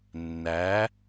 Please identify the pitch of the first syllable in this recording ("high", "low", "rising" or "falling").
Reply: rising